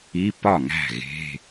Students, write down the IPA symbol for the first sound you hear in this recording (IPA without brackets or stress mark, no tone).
i